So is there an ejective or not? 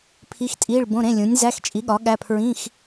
yes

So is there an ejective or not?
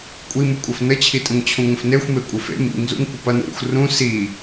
yes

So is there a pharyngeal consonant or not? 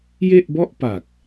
no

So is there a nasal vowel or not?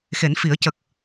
no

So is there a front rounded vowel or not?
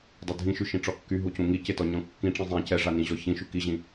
yes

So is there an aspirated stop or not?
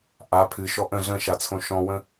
yes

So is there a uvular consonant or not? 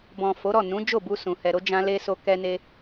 no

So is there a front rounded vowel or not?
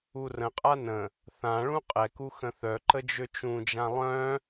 yes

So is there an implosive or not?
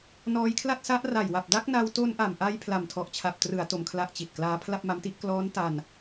no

